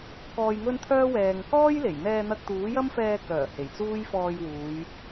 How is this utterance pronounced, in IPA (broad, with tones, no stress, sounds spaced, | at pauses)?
k ɔː˧ j ŋ ɵ˥ n t̪ʰ œː˥ w ɛː˨ ŋ k ɔː˥ j l e˨˩ j n̪ ɛː˧ n̪ ɐ˧ k̚ t̪ uː˨˥ j ɐ˥ m f ɛː˧ k œː˨˩ h e˨˩ j t͡s uː˥ j f ɔː˧ j w uː˨˧ j